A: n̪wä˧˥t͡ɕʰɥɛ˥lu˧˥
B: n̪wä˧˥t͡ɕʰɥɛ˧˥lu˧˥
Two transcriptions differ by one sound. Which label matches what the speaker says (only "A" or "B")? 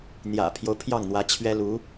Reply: A